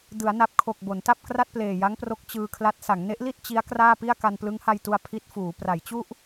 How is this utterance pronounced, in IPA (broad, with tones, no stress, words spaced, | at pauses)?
dɯ˩˦a̯na˨˩p̚kʰo˨˩k̚ bo˩˦nta˥˩p̚kra˥˩t̚ pleː˨˩ja˦˥ŋpro˦˥k̚ t͡ɕɯː˧kʰla˦˥t̚ sa˩˦ŋne˦˥ʔli˥˩t̚ t͡ɕi˦˥a̯ kraː˥˩pi˥˩a̯ ka˧nplɯ˦˥ŋha˧jtu˧a̯ pʰi˦˥t̚fuː˩˦ pra˩˦jt͡ɕu˥˩ʔ